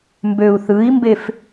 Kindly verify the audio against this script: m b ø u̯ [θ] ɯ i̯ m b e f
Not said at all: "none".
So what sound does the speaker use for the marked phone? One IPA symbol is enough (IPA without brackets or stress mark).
θ